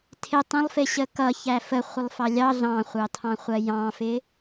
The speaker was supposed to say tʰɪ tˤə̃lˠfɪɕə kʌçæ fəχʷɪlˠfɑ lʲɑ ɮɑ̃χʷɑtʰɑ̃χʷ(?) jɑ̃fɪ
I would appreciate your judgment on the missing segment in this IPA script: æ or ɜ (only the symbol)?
ɜ